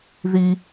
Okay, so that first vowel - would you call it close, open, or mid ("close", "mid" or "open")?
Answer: close